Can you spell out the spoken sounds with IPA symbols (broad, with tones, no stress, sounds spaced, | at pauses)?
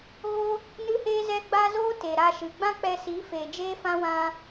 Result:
ɣ o˦ | n ɨ˦ h eː˦ z ɛ˦ ɡ͡b a˦ z oː˦ t e˨ ɾ a˧ ʃ ɨ˨ ɡ͡b ã˦ k͡p ɛ˧ s i˨˦ f eː˨ d͡ʒ eː˦ f ã˦ w ã˦